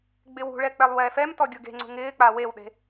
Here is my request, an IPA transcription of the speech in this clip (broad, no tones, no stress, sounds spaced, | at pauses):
ɡ͡b ɪ w ṳ ɭ ɛ k͡p ɛ lˠ w ɛː f ɛ m t ɔ ɡʲ ʊ ɡ e̤ ŋ͡ǀ ṳ ŋ ɪː k͡p a w e w ɗ e̤